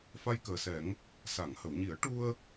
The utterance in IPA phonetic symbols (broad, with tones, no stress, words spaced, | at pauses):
fa˧jkəː˨˩sɛ˨˩˦ŋ | sa˨˩˨ŋhə˨˩˨wɲi˨˩˦ə̯ ʈu˧ə̯